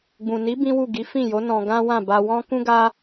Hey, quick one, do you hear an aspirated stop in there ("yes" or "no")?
no